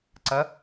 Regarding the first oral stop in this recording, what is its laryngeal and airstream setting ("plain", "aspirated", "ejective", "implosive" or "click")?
click